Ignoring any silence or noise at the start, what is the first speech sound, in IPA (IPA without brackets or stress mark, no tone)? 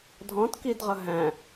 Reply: dʱ